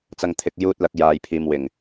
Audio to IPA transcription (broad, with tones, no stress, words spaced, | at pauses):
t͡sɐ˨ŋt̪ʰɪ˨k̚juː˧t̚ lɐ˨˥k̚jaː˨jpʰiː˨mwɪ˨˩ŋ